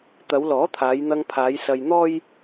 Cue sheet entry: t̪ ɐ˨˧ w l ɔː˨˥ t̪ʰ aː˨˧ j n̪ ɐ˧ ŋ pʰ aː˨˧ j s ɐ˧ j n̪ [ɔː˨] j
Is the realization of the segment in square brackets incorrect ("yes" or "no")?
yes